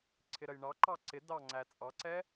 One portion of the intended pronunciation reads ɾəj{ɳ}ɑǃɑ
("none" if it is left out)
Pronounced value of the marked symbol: ɳ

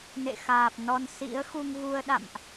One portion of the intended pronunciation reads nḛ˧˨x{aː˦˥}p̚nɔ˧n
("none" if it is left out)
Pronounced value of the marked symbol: aː˨˩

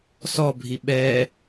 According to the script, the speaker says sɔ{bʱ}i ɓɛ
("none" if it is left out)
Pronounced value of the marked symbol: bʱ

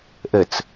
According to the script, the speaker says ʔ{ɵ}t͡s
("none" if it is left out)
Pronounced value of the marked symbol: ə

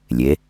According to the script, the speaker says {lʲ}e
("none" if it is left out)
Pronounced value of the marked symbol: lʲ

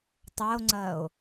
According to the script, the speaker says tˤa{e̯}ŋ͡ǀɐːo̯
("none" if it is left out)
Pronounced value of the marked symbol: o̯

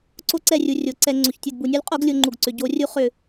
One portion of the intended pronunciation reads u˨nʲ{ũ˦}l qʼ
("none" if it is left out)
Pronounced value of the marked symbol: u˦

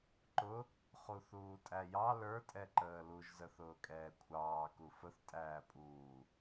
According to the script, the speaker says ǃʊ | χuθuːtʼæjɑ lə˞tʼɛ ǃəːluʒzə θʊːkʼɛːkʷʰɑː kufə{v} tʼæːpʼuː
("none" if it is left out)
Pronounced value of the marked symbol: θ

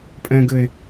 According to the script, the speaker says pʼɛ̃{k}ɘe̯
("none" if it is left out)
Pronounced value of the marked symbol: ɡ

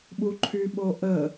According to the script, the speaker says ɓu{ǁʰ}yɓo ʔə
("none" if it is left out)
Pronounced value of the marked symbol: ǃʰ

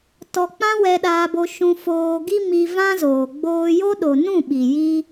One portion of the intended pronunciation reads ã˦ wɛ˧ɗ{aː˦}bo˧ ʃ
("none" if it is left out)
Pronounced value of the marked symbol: aː˧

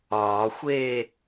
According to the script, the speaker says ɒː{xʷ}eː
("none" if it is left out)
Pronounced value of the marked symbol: xʷ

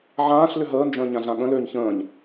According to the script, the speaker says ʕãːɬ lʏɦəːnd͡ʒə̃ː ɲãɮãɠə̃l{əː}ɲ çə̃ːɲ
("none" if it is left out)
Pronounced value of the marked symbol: øː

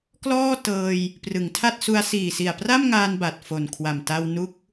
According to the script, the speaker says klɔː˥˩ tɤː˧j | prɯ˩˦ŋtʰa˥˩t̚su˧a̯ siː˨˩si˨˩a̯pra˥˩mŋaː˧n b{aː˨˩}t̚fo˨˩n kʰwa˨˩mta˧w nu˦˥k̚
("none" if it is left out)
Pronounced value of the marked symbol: a˨˩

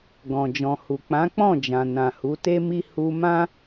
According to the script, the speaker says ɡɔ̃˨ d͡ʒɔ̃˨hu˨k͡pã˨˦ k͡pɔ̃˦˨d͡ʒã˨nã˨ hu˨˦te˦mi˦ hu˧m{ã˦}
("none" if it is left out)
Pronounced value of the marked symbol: ã˦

